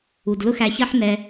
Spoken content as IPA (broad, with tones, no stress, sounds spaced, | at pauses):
u˨ d l ʊ˦ x æ˧ ç ɜ˦ ħ n ɛ˧